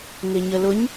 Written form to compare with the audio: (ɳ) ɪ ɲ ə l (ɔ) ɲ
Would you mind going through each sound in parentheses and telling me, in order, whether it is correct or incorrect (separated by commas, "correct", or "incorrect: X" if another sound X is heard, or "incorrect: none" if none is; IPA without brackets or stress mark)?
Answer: incorrect: n, incorrect: ʊ